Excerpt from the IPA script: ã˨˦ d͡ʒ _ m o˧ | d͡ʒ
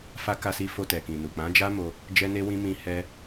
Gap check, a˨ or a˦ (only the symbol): a˦